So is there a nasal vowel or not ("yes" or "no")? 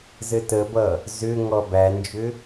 no